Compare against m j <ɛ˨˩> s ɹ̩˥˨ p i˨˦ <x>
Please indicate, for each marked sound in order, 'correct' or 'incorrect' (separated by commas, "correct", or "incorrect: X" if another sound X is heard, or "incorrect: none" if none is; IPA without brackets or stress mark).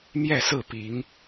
incorrect: ɛ˥˨, incorrect: ŋ